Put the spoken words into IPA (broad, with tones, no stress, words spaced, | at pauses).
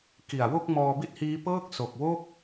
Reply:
ki˨˩a̯wo˥˩k̚ mɔː˧bi˥˩t̚hiː˦˥ pɤː˥˩k̚ so˨˩k̚wo˥˩k̚